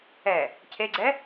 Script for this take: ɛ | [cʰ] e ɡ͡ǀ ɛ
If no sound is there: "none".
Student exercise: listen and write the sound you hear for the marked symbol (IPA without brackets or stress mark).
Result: cʰ